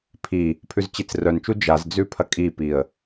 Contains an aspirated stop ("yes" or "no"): yes